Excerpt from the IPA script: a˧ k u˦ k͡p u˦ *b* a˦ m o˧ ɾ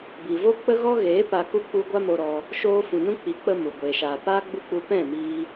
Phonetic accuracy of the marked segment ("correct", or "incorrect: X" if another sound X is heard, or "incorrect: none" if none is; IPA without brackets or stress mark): incorrect: ɡʷ